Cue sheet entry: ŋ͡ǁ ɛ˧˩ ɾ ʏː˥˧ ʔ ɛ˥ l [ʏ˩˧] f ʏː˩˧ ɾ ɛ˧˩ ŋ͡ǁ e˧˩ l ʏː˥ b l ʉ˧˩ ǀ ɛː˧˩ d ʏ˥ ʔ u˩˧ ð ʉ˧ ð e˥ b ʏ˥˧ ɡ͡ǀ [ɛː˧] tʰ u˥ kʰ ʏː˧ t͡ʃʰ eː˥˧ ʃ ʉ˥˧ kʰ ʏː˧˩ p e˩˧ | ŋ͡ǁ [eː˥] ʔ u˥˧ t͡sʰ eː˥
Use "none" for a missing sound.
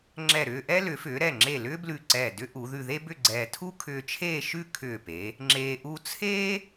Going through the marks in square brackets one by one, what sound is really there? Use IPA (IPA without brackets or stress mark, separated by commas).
ʏ˩˧, ɛː˧, eː˧